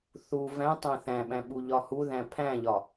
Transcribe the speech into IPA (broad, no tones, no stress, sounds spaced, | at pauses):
θ u v æ̃ tˤ æ̃ θ æ̃ ɓ æ̃ ɓ u ʎ ɒ h u ð æ̃ pʰ æ̃ ʎ ɒ